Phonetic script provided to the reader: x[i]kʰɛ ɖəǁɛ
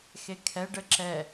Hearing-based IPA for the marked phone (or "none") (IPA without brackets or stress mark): e